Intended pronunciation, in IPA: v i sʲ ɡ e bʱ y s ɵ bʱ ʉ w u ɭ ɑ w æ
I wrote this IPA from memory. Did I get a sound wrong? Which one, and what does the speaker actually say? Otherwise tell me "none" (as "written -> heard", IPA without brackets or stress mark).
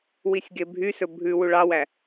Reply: v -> w